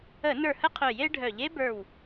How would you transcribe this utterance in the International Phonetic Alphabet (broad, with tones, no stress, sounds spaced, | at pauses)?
ə˧˩˧ n ə˞˧˩ h ə˥ qʰ œ˧˩ j e˥ ɖʱ œ˧˩˧ ʎ e˥ b ə˞˧˩ w